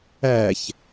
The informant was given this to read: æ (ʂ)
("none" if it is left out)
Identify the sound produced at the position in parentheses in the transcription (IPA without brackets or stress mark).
ç